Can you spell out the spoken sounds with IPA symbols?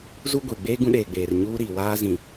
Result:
zu˦ ɡʷe˨ ɡ͡beː˦ ɡũ˦ɗeː˨ɡ͡beː˨r ɲuː˦ ɾiː˨waː˦zĩ˨

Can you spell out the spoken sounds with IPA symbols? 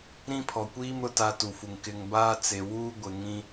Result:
ɾĩ˦pʰɔ˨kʷiː˦mɾʊ˨ ta˦tu˨fu˨ŋ kɪ˨ŋbaː˦t͡se˨wuː˦ ɡʷɪ˨ŋĩ˦

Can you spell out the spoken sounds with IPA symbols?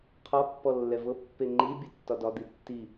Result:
qʰɒpːɔ lːɛvɤpːe ŋ͡ǃibʲə tːɒdɒd̪i tːi

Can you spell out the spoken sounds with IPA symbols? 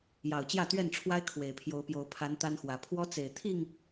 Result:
jɑ˨˩ʊ̯t͡ɕjä˥˨t̪ɥɛ˥˨nʈ͡ʂʰwa˦ɪ̯ kʰwe˨˩ɪ̯pʰjo˨˦ʊ̯pjo˨˦ʊ̯ pʰa˨˦n t̪a˦nxwä˨˦ pʰwɔ˦t͡se˨˩ɪ̯ t̪ʰi˥˨ŋ

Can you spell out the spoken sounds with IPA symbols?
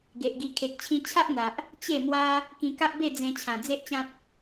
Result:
ɡe˨ʔɡi˧ kʰe˨k̚t͡ɕʰĩ˧ t͡ɕʰa˦ʔn̪a˨ʔ | t͡ɕe˥˧mwa˦ | kĩ˧ka˦ʔbe˥˧ d͡zẽ˧ t͡ɕʰã˨˩d͡ze˦ʔt͡ɕã˦t̚

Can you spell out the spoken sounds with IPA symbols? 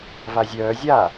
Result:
vazʲœː zʲa

